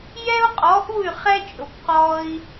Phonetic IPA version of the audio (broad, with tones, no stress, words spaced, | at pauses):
jɛ˥u̯qʼɔ˩˥ʔu˥˩y̯ χɛ˥t͡ʃʼʊ˩b qɔ˧i̯